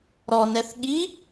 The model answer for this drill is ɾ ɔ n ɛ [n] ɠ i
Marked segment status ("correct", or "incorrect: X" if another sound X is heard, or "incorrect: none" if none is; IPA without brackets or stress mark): incorrect: θ